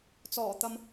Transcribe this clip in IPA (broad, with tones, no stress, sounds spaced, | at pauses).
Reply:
t͡s ɔː˨˩ t̪ ɐ˨ m